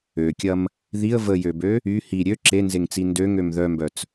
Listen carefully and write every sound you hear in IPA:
ø kʲ ɐ m | ð i ə̯ v ə j ø b ø | y h i ɾʲ ø ǁ e n z e ŋ t͡s i n d ø ŋ ø m ð œ m b œ t͡s

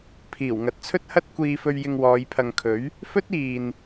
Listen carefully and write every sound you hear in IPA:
pʰ iː˨˩ w ŋ ɐ˨˥ t̚ t͡sʰ ɵ˥ t̚ h ɐ˥ t̚ kʷ iː˧ f ɵ˧ ɥ j ɪ˧ ŋ w ɔː˨˧ j pʰ ɐ˨ ŋ kʰ ɵ˨˥ ɥ | f ɵ˥ t̚ iː˨ n

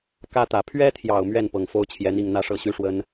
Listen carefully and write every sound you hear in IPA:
k ä˥ t̪ ä˨˩ pʰ ɥ ɛ˥ t̪ʰ j ɑ˨˩ ʊ̯ m ɥ ɛ˥˩ n p ɤ˨˩ ŋ f o˥ ʊ̯ t͡ɕʰ j ɛ˧˥ n̪ i˥˧ ŋ n̪ ä˥˧ ʂ ɤ˥˩ ɕ y˥ ʂ w ə˥ n

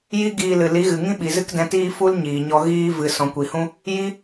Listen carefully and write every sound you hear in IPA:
j i˦ ɡ iː˧ l ɨ˨ l i˨˦ ɣ ɨ˨ ŋ ĩ˦ ɓ i˨ z ɨ˦ k d ɛ̃˧ t iː˦ f u˦ l ɲ iː˨ ɲ ɔ˧ ɣ iː˦ v ɨ˨ s ɔ̃˨ kʷ i˨ h ũ˦ | j i˦

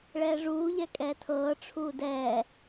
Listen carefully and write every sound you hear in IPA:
ɭ ɛː ʐ uː ʎ ɛ kʼ ɛː tʰ ɤː ʈ͡ʂʰ uː d ɛː

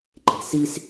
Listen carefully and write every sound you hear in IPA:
ǃ e̤˨ s i˦ s

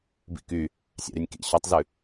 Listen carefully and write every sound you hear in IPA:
b ḭ k y | sʲ ɑ̰ ɾ y nʲ k ḭ ɕ œ tˤ z ʉ

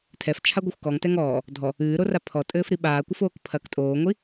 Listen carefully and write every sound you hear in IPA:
tʰ ɛ f t͡ʃʰ a ɡʷ ɐ xʷ k ɔ ŋ t ɛ ŋ ɔː | dʱ ɔ | ɨː ɾ o r a pʰ ɔ tʼ ɘː f ɾ i ɓ aː kʷ ɐ f oː k pʰ ɐ k tʼ oː ŋʷ i

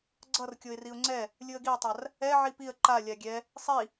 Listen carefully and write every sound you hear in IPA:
ɡ͡ǀ ʌ r kʲ o ɪ̯ r i ʊ̯ ŋ͡ǀ ɛ | lʲ ɯ ə̯ ɡ i ə̯ tˤ a r | ɛ ʕ i p i ə̯ ǃ a lʲ a ɡʲ ɛ | sˤ i

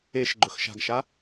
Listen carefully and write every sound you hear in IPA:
e ʃ ɡ͡ǃ ɵ x ʃ a̤ ɡ ʃ a

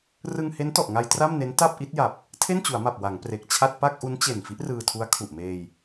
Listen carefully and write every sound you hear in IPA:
r ɯ˧ ŋ h e˦˥ n t ɔ˨˩ ʔ ŋ a˧ j t r a˥˩ m n e˦˥ n t a˥˩ p̚ ʔ i˦˥ t̚ j a˨˩ p̚ | tʰ e˥˩ n t͡ɕ u˩˦ a̯ m a˨˩ p̚ w a˩˦ ŋ p r e˨˩ k̚ t͡ɕʰ a˥˩ t̚ p a˥˩ k̚ ʔ u˦˥ n t͡ɕ e˨˩ n f i˦˥ ʔ r ɯː˧ tʰ u˦˥ a̯ kʰ u˨˩ ʔ m eː˧ j

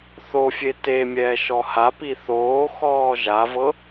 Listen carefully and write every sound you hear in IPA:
θ o fʲ e t e mʲ ɛː ʃ ɔ h a p i θ oː x ɔː ʒ a v ɤ

